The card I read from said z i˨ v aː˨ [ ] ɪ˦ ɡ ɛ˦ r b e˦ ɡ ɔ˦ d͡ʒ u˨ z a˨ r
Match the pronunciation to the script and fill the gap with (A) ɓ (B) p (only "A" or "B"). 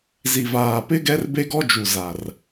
B